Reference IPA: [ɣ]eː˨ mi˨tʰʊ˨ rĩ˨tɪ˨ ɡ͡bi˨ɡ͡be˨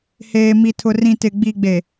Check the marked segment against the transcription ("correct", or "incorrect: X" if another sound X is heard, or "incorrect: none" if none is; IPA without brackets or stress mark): incorrect: h